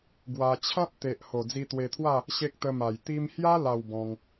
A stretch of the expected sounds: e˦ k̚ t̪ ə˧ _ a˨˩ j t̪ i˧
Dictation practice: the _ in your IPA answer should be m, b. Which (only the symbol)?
m